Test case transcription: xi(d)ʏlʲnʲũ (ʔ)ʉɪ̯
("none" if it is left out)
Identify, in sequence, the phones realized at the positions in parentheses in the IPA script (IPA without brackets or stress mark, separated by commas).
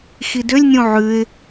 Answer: d, ʕ